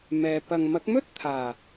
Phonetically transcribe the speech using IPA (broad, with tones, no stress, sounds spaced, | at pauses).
m ɛː˨ p ɐ˨ ŋ m ɐ˨˥ k̚ m ɵ˥ t̚ t̪ʰ aː˨˩